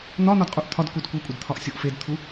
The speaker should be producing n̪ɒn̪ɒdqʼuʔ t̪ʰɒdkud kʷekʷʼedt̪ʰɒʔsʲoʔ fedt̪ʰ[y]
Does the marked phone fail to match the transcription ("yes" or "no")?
yes